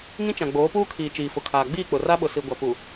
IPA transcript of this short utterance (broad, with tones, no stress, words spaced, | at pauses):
ŋĩ˦t͡ʃã˨ ɡ͡boː˨˦puː˦kʰiː˨ t͡ʃiː˨fʊ˨kʰaː˨ ɡ͡biː˦˨k͡pʊ˨ ra˦ɓʊ˨si˨ ɡʷa˨pu˨